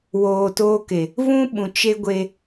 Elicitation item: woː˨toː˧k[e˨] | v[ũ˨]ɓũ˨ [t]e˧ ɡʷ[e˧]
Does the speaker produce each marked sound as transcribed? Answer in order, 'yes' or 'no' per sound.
yes, no, no, yes

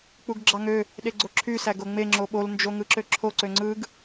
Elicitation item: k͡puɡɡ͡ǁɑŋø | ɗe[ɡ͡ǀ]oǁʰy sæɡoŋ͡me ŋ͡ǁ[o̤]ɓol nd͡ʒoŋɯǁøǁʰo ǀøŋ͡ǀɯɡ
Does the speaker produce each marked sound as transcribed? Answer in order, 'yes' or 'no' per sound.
yes, no

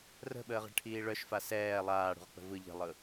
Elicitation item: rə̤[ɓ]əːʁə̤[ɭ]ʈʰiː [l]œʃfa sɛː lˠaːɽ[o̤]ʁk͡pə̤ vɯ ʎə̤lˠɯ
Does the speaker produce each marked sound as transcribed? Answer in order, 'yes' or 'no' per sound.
yes, yes, no, no

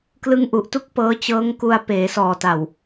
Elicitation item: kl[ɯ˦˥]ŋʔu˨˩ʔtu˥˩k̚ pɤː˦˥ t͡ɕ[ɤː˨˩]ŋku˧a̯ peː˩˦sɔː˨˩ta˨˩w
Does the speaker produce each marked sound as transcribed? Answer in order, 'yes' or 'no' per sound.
yes, no

